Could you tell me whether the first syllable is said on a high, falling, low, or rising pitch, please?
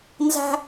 high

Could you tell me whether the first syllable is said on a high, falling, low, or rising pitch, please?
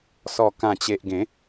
low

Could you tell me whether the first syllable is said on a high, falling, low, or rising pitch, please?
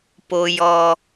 high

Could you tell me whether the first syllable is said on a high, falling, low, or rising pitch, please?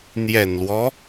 low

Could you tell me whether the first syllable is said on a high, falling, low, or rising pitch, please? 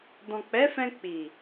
low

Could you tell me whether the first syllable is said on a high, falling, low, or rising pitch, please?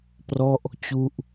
falling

